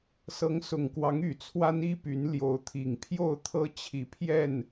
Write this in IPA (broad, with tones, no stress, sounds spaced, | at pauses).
s ɤ˨˦ ŋ s ʊ˨˩ ŋ k w ɑ˨˦ ŋ y˨˩ t͡sʰ w a˦ n i˦ p y˨˦ n l j o˨˦ ʊ̯ t̪ʰ i˨˩ ŋ pʰ j o˥˨ ʊ̯ t̪ʰ ɤ˦ t͡ɕʰ i˨˩ pʰ j ɛ˥˨ n